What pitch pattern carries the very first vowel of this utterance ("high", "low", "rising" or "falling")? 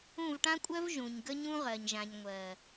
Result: falling